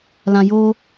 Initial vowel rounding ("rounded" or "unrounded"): unrounded